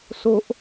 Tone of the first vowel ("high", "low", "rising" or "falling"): high